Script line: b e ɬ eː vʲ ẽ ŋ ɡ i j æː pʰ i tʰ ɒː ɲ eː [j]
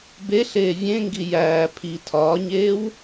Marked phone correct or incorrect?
incorrect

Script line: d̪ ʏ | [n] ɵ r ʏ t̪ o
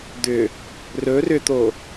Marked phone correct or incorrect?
incorrect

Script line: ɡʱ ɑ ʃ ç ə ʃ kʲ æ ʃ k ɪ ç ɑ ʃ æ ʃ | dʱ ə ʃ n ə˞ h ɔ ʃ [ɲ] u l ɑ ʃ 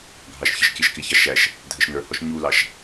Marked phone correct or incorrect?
correct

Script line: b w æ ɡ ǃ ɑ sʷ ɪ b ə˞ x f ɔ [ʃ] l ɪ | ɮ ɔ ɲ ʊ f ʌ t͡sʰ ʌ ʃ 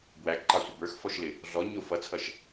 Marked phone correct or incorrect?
correct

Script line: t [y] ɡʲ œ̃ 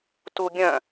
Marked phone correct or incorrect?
incorrect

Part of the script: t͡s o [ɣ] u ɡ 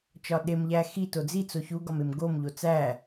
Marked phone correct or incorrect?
incorrect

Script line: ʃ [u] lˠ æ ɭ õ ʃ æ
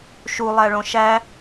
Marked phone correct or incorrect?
correct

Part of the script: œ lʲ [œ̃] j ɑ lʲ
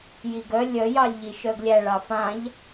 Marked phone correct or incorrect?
incorrect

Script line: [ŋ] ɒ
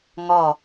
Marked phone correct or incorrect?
correct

